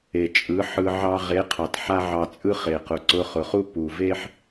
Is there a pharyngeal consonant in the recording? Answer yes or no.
yes